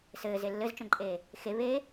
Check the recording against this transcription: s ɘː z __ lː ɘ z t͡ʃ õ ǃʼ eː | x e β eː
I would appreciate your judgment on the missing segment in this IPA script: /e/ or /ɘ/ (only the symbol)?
e